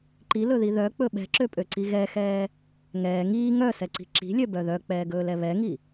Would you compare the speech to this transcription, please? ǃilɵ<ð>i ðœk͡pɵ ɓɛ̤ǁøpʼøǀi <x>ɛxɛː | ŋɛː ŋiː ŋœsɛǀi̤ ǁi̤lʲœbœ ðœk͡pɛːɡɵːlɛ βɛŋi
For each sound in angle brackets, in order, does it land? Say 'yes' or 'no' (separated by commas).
yes, no